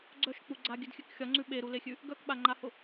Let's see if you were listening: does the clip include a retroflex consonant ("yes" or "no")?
no